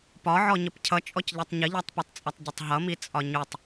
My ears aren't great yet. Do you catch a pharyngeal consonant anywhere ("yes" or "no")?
yes